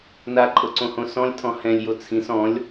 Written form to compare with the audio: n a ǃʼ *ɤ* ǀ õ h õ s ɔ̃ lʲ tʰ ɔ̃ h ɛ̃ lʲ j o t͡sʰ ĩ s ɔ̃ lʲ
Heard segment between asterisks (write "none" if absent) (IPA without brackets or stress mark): ɤ